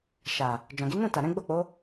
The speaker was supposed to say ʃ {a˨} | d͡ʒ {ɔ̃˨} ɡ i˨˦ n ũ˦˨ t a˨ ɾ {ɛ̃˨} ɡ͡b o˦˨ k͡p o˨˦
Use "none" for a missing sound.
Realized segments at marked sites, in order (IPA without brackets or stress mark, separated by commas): a˨, ɔ̃˨, ɛ̃˨˦